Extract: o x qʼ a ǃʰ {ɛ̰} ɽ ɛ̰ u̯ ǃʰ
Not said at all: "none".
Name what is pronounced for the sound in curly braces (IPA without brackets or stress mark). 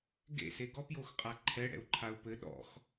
ɛ